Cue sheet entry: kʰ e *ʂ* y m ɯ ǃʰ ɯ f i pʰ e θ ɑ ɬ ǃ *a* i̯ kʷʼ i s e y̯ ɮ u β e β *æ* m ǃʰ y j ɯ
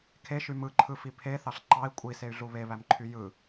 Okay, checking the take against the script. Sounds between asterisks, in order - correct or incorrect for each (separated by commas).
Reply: incorrect, incorrect, correct